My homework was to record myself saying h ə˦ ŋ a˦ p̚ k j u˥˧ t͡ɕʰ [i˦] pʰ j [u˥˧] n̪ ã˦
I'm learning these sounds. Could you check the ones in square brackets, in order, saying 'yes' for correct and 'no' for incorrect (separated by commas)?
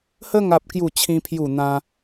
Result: no, yes